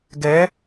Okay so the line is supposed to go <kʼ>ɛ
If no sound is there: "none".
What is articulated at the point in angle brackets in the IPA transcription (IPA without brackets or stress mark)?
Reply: ɡ